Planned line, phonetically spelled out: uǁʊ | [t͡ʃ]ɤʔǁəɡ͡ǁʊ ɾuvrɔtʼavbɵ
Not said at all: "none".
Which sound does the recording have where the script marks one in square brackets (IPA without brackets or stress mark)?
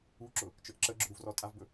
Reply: t͡ʃ